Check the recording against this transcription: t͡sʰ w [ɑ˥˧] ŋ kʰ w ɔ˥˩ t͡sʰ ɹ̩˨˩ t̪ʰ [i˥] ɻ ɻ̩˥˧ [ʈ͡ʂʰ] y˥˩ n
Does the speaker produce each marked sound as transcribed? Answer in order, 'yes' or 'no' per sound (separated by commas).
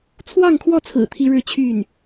yes, yes, no